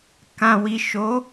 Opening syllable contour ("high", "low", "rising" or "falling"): low